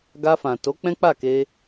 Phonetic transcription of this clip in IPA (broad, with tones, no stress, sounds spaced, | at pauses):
ɡ a˧ f ã˨ t o˨˦ k͡p ɛ̃˦ k͡p a˦˨ k e˧